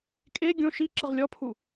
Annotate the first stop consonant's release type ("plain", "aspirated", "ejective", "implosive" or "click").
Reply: ejective